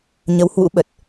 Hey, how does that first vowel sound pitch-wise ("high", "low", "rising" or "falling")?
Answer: rising